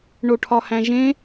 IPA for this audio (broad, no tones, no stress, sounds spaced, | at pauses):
ɳ o ʈʰ ɒ h æ̃ ʒ ẽ